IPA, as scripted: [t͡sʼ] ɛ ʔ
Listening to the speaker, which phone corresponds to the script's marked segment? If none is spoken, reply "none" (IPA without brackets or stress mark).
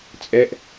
t͡sʼ